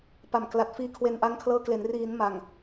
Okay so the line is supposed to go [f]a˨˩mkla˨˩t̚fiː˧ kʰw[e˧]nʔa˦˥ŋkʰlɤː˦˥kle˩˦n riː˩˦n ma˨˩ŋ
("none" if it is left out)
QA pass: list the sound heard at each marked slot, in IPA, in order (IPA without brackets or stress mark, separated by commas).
p, e˧